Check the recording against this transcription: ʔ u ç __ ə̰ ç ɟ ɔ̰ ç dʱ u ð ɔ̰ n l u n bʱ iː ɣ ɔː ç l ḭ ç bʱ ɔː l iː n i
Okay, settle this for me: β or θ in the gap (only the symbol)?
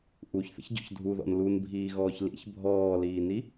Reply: θ